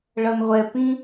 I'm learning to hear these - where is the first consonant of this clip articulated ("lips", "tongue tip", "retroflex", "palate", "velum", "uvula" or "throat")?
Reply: retroflex